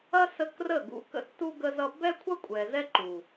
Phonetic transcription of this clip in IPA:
ɐ˦ s ə˧ k r ə˦˨ ɡ ṵ˧ k ə̰˧ tː u˧ ɡ ə˧ z ʌ˧ b ɛ˦ kʷʰ ɐ˦ kʷʼ ɛ˨ z ɛ˦ ǃ u˨

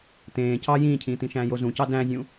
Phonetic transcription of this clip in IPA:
t̪ ẽː c ɑ j ĩː cʰ ĩː t̪ ĩ ʃ æ̃ː j o z ũ c ɑ d æ̃ zʲ ũ

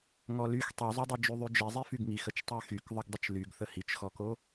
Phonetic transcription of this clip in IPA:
ŋ ɔ l y x tˤ y zˤ y dˤ i d͡ʒ y ðˤ y d͡ʒ i zˤ i f y ɡ ŋ i x ə t͡ʃ tˤ y x y k ðˤ ə ɡ dˤ ə t͡ʃ l y ɡ θ ə h i t͡ʃ x ɔ k o

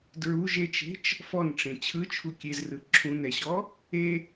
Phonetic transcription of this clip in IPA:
d ɹ u ʒ e t͡ʃ e̤ t͡ʃ | f ɔ n ʈ͡ʂ ẽ t͡ɕʰ ɯ t͡ʃʰ u kʲ e z r ɯ ǁʰ ũ n ɛ ɕ ɔ | e

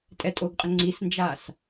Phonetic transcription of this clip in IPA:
tʼ ɛ tʼ o ɡ qʼ ə ŋ͡ǀ i s n d͡ʒ a s

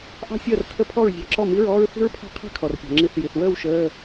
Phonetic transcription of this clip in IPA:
ʔ ɑ̤˥ sʲ əː˥˩ r tʰ ə˥˩ pʰ ɔ˥˩ ɹ zʲ ɑ̤˨˥ ǁ ɔ˥˩ m i˧˥˧ ɹ ɔː˥ ɹ θ i̤˥ ɹ pʰ ɑ̤˥ qʰ i̤˥˧ kʰ ɔ˩ r pʲ ɑ̤˩ ŋ͡ǁ i˨˥ θ j i˩ θ w əː˥˧ w ʃ əː˧˥˧

